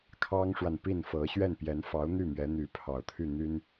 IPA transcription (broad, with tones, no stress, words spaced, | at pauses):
kʰɑ˥ŋʂwa˨n pi˥˩nfɤ˧˥ ɕɥɛ˥˩npjɛ˧˥nfɑ˧˥ʊ̯n̪y˥˩ mɥɛ˧˥n̪y˧˥pʰɑ˨˩ʊ̯t̪ʰy˥˩ n̪y˥n